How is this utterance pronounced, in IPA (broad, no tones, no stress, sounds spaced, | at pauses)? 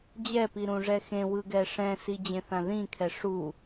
d͡ʑ ɛ p i ɾ ũ ʐ ɛ x ẽ w ɯ ɡ ɛ ʂ ɛ̃ s i d͡ʑ ẽ θ ã ð ĩ kʰ ɛ ʂ u